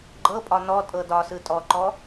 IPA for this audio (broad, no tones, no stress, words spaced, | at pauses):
ɡ͡ǃɤpʼɒ nɔtʼɤ dɒsɯ tʼɔǃɔ